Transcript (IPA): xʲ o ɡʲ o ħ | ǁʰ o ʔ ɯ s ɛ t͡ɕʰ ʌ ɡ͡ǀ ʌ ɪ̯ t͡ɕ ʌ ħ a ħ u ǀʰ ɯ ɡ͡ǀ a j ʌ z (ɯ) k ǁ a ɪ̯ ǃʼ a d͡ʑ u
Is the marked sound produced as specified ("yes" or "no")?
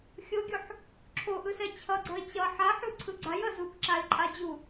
no